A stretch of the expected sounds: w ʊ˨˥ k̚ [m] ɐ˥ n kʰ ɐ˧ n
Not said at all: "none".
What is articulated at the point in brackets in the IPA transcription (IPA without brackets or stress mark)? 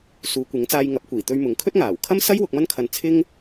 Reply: m